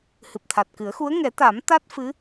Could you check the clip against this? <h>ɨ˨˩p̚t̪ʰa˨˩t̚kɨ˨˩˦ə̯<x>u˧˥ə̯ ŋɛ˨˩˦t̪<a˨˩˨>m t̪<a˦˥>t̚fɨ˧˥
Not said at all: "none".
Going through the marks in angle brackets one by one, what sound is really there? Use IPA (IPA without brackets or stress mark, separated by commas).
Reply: h, x, a˨˩˦, a˦˥